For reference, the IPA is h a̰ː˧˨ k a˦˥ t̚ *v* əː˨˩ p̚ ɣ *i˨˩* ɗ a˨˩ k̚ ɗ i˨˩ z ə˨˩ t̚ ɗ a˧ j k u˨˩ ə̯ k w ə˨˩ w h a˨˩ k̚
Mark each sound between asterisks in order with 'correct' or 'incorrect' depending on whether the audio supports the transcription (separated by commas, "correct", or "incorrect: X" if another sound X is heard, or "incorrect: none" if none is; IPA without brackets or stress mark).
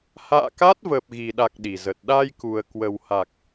correct, correct